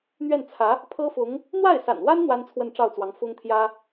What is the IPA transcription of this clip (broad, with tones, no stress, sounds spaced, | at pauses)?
n̪ ɥ ɛ˥˩ n t͡sʰ ä˧˥ | pʰ ɤ˥ f ʊ˧˥ ŋ | n̪ w a˥˩ ɪ̯ s a̰˨˩ n w a˥ n n̪ w a˥ n t͡sʰ w ə˥˧ n ʈ͡ʂ ɑ˥˩ ʊ̯ t͡s w ɑ˧˥ ŋ f ʊ˥ ŋ t̪ʰ j ä˥